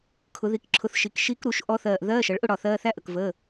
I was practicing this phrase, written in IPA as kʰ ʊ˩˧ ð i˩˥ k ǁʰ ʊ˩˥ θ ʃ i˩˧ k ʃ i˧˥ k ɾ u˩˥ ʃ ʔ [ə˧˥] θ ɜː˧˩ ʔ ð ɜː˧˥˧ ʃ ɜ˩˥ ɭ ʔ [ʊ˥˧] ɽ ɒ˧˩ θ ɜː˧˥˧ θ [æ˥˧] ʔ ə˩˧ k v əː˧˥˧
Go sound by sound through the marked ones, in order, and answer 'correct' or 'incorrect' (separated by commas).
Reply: incorrect, correct, correct